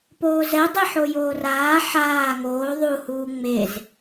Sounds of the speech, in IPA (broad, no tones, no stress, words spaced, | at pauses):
poːzɛ dˤiħojoːraː ħaː ŋoː ðˤu huːŋ͡mez